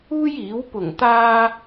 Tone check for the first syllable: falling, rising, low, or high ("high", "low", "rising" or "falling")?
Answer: high